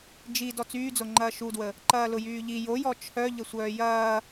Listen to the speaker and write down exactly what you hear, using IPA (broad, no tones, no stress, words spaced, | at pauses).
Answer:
d͡ʒi dɔt͡syːd͡zoŋ͡ǃɐː ʃudwə | ǃɐːlʊjyːʎi jojɔ t͡ʃʰœ ʎəsʷœːjɐː